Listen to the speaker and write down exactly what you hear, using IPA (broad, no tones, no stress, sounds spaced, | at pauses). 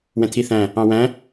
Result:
w ɛ̃ t̪ʰ i θ æ̃ | ɑ̃ w æ̃